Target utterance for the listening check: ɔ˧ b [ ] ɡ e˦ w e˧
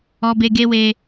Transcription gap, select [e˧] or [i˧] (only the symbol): e˧